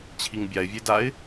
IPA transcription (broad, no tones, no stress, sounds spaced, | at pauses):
t͡ɕʰ i ŋ bʲ a ɪ̯ vʲ e d a ɪ̯